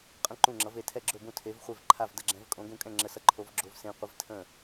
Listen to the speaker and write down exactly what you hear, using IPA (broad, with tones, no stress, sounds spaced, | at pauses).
qʼ ə̃˥˩ ǃ ũ˥˩ ŋ͡ǁ ʌ˨˥ v e˨˥ tʰ ɛ˥˩ ɡ͡ǁ ɵ˥˩ b ũ˥˩ tʰ e˨˥ v χʷ e˥˩ v ǃʰ a˥˩ v d ə˥˩ ɡ͡ǁ ɛ̃˨˥ v kʼ õ˨˥ ɡ ũ˥˩ kʼ ɛ̃˥˩ ŋ͡ǁ ə˨˥ s ʌ˨˥ ǃʰ o˨˥ v ɡ͡ǁ o˨˥ v s ẽ˨˥ qʷ ə˨˥ v tʰ ə̃˥˩